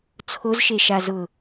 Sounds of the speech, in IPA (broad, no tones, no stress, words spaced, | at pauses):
t͡sʰozʃeʃa zʊ